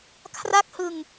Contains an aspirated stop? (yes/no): yes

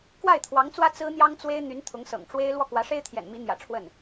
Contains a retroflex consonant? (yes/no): yes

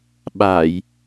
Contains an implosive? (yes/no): yes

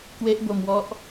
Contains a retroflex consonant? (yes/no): no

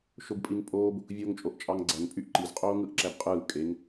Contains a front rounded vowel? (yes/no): yes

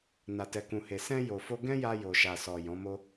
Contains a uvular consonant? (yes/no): no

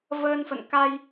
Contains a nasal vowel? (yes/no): no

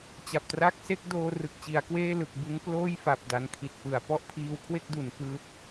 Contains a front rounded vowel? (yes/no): no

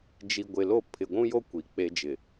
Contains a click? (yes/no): no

